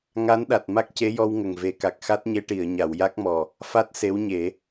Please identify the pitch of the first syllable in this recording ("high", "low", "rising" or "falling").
rising